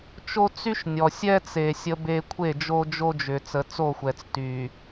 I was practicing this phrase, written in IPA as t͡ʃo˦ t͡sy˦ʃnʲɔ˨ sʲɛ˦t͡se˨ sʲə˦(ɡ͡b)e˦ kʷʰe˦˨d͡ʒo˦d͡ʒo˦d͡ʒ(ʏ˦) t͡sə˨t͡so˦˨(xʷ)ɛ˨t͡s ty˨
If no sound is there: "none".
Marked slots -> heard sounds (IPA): b, ʏ˨, xʷ

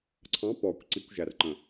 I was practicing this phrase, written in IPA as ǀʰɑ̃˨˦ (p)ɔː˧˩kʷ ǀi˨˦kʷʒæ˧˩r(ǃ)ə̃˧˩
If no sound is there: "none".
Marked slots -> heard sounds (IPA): p, ǃ

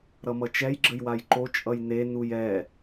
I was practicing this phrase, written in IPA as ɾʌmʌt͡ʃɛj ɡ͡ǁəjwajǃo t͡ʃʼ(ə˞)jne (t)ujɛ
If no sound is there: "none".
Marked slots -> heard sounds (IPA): ʌ, n

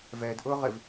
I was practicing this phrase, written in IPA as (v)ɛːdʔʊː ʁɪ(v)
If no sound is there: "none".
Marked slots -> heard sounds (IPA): v, v

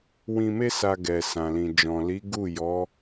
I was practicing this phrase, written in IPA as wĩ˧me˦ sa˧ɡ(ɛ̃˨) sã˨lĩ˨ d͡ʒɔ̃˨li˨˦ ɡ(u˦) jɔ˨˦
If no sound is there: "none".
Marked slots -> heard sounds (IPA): ɛ˨, u˦˨

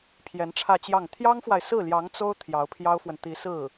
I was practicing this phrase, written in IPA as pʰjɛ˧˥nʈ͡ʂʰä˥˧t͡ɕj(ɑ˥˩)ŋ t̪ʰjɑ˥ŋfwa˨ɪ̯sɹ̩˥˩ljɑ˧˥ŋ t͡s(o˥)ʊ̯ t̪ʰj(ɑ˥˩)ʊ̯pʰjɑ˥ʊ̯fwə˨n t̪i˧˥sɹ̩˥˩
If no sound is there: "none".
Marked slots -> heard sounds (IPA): ɑ˥˩, o˥, ɑ˧˥

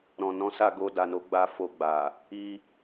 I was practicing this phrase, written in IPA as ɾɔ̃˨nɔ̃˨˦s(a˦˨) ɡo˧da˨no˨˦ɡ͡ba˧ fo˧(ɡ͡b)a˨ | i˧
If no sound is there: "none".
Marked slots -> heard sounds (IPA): a˦˨, ɡ͡b

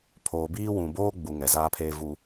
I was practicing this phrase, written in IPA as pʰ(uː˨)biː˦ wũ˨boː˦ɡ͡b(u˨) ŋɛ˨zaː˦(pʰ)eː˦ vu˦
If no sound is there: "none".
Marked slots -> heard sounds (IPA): oː˨, u˨, pʰ

